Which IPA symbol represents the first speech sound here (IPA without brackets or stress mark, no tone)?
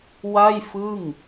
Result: w